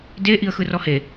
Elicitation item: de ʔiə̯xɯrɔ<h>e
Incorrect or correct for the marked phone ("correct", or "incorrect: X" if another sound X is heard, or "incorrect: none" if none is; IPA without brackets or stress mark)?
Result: correct